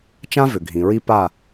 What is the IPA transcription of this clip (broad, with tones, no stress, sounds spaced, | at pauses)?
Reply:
t͡ʃ ã˦ v ʏ˨ ɡʱ ĩ˨ ɹ i˦ p a˦˨